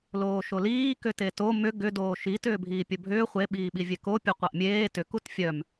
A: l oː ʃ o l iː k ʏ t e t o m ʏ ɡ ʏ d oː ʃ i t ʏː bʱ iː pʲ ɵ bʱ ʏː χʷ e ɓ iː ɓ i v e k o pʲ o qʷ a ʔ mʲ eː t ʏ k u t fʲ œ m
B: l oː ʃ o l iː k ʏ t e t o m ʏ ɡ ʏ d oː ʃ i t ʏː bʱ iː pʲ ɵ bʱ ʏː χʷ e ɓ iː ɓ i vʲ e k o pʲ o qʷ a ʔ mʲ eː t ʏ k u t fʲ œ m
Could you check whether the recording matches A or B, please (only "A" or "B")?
B